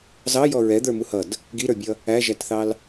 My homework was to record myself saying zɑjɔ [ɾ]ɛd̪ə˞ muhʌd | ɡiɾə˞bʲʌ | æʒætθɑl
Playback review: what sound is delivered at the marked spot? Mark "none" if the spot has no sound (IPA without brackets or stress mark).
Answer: ɹ